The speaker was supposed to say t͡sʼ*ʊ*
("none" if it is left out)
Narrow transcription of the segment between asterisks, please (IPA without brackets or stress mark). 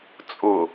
ʊ